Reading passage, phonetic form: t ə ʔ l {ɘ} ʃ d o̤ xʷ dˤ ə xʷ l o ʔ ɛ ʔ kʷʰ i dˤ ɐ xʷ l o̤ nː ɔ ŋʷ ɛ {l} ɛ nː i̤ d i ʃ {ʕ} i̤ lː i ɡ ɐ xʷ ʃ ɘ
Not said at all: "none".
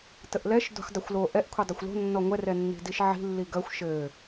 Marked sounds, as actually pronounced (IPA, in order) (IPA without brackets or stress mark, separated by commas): ɛ, r, ʕ